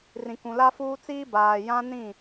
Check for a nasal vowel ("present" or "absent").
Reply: present